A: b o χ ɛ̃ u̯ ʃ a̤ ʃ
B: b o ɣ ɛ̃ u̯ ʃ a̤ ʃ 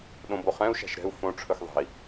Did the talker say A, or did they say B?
A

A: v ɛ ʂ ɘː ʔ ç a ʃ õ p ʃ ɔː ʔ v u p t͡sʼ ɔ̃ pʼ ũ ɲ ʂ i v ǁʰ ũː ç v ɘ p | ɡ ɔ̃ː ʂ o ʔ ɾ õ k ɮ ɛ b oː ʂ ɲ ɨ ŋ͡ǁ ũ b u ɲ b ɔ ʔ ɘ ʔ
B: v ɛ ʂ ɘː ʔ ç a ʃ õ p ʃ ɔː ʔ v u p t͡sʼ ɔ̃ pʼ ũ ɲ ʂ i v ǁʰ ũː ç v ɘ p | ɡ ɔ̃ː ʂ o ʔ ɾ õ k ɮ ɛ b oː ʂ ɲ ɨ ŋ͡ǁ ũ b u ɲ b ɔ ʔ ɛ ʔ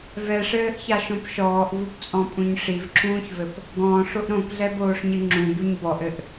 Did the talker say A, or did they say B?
A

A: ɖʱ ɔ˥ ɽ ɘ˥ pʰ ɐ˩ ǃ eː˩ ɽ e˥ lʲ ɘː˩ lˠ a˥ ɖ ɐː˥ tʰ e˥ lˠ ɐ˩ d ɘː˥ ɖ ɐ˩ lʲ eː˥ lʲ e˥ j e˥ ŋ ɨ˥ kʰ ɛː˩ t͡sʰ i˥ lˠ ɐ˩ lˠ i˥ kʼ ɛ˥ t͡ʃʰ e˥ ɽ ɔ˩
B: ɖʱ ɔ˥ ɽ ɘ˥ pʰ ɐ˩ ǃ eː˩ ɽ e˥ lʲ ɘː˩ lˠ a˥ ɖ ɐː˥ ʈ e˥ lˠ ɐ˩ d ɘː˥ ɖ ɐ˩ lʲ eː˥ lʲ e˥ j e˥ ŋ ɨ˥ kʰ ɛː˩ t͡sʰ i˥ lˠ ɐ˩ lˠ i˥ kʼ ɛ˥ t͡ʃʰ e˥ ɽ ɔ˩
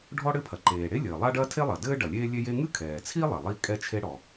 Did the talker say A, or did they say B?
A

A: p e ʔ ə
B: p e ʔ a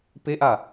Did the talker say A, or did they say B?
B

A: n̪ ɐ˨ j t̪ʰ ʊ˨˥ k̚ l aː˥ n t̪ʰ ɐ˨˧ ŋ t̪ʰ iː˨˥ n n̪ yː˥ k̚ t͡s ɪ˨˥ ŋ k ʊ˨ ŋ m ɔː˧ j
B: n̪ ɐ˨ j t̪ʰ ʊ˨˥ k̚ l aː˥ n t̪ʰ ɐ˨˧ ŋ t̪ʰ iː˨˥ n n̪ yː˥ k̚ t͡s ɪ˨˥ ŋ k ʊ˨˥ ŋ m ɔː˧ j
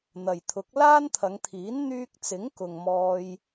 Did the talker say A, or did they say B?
A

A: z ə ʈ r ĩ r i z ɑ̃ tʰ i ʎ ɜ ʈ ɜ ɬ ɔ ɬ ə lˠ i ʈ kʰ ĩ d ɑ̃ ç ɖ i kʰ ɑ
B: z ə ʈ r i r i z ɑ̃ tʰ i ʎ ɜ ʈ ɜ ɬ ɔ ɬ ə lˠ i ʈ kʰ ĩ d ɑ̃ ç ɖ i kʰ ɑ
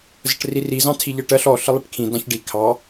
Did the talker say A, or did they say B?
B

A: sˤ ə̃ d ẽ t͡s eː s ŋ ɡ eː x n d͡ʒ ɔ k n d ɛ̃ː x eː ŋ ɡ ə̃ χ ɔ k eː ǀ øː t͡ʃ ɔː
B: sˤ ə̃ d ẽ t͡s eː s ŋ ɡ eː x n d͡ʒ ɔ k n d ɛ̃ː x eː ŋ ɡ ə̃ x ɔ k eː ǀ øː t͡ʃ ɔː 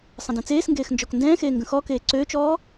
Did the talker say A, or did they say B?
B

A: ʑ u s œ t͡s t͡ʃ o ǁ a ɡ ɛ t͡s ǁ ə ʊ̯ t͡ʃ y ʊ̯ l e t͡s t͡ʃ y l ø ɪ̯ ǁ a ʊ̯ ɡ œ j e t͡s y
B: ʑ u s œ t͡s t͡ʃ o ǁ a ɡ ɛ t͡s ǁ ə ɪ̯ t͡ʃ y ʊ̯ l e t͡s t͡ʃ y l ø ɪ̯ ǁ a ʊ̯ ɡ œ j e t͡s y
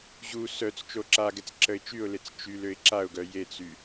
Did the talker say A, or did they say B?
B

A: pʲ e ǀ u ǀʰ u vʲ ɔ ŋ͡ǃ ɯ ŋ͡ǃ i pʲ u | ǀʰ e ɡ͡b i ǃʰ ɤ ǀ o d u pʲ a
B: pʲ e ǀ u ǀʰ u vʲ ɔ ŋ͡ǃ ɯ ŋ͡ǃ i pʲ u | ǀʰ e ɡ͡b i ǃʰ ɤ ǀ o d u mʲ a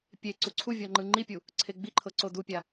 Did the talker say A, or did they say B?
A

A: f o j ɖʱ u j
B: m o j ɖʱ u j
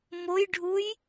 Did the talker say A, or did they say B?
B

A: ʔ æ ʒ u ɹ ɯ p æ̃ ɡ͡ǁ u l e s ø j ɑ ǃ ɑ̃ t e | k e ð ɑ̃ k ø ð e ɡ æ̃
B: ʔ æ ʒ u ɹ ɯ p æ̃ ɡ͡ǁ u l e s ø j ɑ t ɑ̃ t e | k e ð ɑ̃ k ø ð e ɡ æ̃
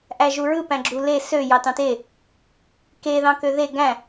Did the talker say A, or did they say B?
B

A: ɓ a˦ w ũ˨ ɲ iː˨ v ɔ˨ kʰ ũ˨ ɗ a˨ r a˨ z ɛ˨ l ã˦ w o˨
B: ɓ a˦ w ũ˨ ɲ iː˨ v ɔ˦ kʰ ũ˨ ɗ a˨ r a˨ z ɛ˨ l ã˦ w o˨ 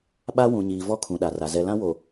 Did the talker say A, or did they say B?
B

